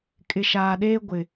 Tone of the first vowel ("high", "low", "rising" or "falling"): low